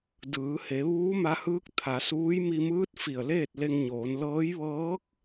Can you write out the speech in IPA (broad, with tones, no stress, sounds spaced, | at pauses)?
d ɯː˩˧ h e˩˧ ʋ uː˧˥ m a˧ h ɯː˧˥ k̚ t̪ʰ a˩˧ s uː˧˥ j m i˧ m ɯː˧˥ t̚ f i˧˩ ə̯ l eː˥˨ t̚ l e˧ ŋ ɲ oː˩˧ n l ɤː˧˥ j ʋ ɤː˧˥ k̚